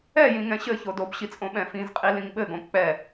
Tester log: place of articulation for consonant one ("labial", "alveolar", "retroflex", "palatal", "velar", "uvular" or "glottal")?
palatal